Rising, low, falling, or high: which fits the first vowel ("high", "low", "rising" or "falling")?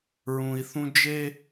low